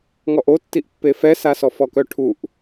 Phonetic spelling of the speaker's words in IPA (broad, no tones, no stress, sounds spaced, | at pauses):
ŋ ɔ ʔ o tː i ʔ pː e f ɛ s a s ɔ f ɔ k œ ʈʰ u ʔ